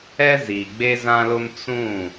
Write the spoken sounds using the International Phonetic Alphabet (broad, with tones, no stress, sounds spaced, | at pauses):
ɛ˦ z i˨ ɡ͡b e˦ z ã˦ l ʊ˦ m t͡s ũ˦˨